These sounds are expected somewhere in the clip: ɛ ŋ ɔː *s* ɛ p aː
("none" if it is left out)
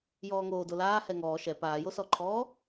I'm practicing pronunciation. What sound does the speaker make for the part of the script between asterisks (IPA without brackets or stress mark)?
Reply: ʃ